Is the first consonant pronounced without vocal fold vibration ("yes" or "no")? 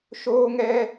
yes